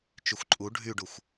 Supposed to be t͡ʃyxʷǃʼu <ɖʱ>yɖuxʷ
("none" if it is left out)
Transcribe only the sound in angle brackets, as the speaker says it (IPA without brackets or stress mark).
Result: ɖʱ